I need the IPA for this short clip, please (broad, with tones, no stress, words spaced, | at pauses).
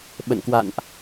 ɓə̰˧˨nkwa̰˧˨nʔ